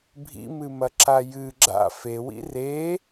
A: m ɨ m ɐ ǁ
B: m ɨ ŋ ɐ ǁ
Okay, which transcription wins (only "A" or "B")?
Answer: A